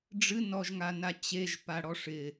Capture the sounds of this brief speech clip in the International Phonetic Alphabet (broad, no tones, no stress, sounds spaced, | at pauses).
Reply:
ɖ͡ʐ ɨ n ɔ ʒ ŋ a n a t͡ɕ e ʒ p a ɽ ɔ ʂ ɪ